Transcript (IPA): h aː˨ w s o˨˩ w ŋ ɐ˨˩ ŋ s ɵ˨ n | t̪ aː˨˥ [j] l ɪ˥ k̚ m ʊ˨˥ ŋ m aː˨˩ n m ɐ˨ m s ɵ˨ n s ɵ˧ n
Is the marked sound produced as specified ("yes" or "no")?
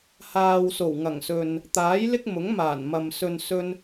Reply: yes